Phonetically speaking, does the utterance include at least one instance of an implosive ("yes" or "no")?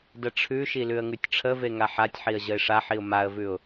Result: no